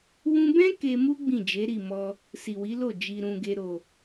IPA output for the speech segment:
w ũ˧ b ɛ̃˦ k e˧ m u˦ ɡ͡b ĩ˦˨ d͡ʒ e˨˦ ɾ i˦˨ m ɔ˧ | s i˨ w i˨˦ l o˦˨ d͡ʒ i˧ ɾ ũ˧ ɡ e˧ ɾ o˨

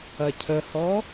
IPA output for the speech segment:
ɐ cʰ ə h ɔ

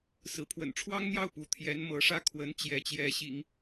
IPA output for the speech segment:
s ɹ̩˧˥ pʰ w ə̰˨˩ n ʈ͡ʂʰ w ɑ˥ ŋ n̪ j ɑ˥˩ ʊ̯ p u˧˥ t̪ʰ j ɛ˧˥ n m ɤ˧˥ ʂ ä˥˩ kʰ w ə˧˥ n t͡ɕ j ɛ˧˥ t͡ɕ j ɛ˧˥ ɕ ḭ˨˩˦ ŋ

